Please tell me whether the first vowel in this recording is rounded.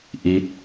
no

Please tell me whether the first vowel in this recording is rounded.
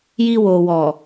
no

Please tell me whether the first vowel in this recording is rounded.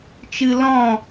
no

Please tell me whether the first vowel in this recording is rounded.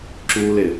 yes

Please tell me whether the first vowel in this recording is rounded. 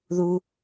yes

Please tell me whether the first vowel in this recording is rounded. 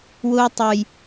yes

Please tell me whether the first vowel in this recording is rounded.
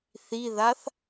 no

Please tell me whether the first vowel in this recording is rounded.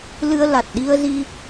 no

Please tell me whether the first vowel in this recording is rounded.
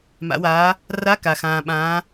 no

